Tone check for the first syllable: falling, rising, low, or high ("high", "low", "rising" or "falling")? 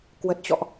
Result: low